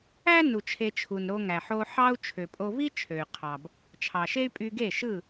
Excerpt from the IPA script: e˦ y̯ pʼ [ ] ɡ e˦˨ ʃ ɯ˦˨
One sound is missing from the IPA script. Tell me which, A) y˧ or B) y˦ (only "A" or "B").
A